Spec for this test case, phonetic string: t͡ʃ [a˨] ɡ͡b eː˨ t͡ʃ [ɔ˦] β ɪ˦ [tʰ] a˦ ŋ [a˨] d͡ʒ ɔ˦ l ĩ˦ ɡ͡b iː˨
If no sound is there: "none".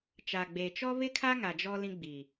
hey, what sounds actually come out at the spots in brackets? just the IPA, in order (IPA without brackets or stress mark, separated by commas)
a˨, ɔ˦, kʰ, a˨